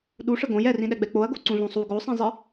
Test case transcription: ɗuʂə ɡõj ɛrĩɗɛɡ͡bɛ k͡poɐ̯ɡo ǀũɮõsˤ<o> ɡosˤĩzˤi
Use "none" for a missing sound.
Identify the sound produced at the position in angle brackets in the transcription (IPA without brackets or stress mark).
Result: u